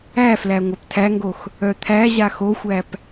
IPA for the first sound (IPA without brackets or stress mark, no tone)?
æ